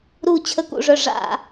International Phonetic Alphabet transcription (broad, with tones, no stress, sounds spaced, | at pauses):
ɾ uː˧˩ t͡ɕʰ ə˧˩˧ k ṵ˧˩ ʐ œ˧˩ ʐ a̰˧˩